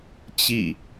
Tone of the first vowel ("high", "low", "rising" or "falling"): falling